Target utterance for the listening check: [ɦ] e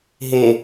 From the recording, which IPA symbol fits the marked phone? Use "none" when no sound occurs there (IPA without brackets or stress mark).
ɦ